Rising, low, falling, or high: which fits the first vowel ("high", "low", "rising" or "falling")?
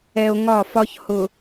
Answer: low